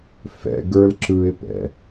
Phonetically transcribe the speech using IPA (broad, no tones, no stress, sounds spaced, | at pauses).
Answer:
f ɛ̰ ɡ ə˞ l ǁ ɯ ɪ̯ p ɛ̰